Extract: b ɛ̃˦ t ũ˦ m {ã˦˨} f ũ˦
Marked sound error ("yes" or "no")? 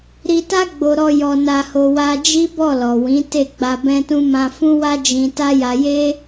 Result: yes